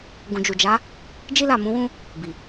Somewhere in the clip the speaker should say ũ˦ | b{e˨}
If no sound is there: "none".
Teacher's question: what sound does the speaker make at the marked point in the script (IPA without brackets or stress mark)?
i˨